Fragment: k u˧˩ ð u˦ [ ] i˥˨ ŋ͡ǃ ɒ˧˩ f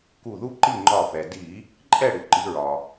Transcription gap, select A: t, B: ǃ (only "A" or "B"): B